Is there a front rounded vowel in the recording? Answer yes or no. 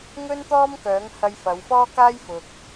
yes